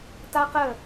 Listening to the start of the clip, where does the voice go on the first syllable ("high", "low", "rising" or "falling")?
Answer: high